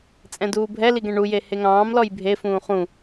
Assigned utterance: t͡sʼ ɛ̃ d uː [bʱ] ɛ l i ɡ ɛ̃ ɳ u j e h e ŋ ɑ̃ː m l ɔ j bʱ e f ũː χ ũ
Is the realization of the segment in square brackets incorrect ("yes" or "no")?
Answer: no